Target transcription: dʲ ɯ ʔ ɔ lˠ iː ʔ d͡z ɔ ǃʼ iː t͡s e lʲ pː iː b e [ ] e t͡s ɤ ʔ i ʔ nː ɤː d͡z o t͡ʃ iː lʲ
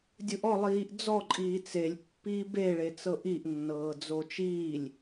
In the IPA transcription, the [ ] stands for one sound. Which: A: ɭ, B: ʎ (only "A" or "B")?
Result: A